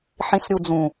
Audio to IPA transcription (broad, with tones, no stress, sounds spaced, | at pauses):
ħ ĩ˨ s ɾʲ u˨ d͡z ũ˨